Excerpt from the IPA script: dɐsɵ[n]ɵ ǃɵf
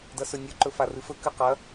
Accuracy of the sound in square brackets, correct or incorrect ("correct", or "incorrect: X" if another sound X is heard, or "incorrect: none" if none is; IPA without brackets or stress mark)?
incorrect: nʲ